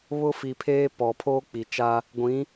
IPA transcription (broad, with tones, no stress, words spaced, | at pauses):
βʊ˦fi˨pʰeː˦ pɔ˨pʰoː˦k͡pi˨t͡ʃa˦ | ɡʷĩ˨˦